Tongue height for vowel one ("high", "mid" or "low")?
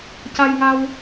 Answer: low